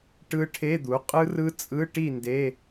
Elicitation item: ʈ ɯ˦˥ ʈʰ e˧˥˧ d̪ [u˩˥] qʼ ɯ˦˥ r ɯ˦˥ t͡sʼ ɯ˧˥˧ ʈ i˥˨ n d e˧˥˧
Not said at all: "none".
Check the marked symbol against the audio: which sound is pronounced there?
u˩˥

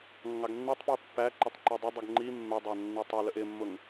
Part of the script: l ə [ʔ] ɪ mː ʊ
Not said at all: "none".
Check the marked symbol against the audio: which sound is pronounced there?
ʔ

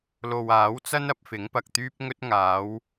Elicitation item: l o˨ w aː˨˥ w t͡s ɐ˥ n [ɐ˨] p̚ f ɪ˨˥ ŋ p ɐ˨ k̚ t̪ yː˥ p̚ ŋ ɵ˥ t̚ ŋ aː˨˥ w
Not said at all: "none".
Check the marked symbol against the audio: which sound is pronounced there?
ɐ˨˥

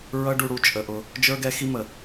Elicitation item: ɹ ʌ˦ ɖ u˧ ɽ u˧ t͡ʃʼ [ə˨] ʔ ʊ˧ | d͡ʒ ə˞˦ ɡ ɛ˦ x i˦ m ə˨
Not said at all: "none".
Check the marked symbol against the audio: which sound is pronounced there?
ə˨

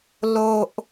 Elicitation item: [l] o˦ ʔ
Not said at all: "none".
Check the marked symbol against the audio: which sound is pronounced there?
l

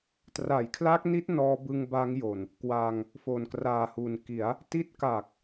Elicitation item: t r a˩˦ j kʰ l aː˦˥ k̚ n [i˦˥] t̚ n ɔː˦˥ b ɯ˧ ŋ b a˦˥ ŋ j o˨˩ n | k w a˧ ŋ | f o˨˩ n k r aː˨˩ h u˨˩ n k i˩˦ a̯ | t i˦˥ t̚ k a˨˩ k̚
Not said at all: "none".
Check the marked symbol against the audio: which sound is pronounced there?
i˦˥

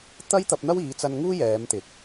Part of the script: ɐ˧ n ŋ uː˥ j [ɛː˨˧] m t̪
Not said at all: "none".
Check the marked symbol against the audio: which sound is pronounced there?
ɛː˨˧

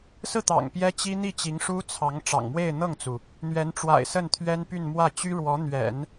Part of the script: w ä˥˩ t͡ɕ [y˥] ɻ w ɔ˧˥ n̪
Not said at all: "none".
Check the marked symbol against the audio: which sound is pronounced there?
y˥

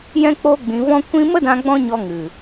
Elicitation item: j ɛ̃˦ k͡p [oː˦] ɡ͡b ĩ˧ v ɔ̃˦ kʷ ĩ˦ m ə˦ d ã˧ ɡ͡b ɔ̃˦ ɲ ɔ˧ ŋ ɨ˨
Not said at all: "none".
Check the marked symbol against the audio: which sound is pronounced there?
oː˦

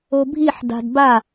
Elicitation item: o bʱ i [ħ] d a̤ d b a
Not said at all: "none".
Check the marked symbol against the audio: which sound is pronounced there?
ħ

